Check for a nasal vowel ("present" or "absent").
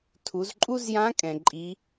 present